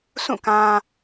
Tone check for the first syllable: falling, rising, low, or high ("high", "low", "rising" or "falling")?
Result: falling